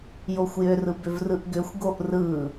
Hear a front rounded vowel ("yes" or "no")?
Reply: yes